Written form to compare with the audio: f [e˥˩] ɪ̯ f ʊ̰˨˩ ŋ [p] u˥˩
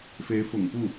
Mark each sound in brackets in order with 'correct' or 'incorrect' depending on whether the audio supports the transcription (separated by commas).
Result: incorrect, correct